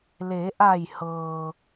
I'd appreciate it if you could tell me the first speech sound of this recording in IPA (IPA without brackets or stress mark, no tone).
l